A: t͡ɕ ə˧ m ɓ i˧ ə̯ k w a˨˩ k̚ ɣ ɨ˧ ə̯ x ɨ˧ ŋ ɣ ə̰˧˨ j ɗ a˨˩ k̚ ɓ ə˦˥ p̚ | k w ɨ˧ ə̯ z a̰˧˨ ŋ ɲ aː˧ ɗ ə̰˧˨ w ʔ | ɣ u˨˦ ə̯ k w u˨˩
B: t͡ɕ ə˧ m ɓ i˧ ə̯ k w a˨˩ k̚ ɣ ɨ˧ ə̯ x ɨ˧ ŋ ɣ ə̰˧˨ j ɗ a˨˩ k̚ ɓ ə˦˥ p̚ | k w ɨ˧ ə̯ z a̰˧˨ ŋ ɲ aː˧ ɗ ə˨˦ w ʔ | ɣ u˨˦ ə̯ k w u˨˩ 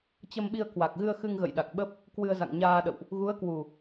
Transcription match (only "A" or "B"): A